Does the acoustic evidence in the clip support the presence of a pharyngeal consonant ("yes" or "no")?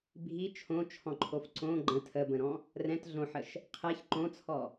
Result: yes